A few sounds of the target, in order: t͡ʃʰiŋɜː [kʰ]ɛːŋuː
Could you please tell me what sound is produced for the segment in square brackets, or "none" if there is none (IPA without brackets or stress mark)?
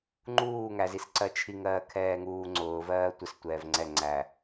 kʰ